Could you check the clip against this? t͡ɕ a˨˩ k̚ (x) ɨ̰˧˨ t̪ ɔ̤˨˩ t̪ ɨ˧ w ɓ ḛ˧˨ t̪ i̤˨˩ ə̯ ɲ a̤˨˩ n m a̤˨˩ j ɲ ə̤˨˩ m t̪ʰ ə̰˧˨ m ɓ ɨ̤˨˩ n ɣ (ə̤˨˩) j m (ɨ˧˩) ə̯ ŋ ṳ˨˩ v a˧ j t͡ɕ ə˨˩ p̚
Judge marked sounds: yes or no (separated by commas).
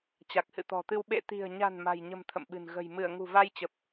no, yes, yes